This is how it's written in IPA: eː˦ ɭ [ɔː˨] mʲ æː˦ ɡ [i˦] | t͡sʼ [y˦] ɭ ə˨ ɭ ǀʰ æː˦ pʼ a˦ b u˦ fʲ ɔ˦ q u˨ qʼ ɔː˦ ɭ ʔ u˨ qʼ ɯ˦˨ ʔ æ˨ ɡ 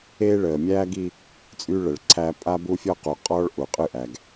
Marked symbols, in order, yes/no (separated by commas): no, yes, yes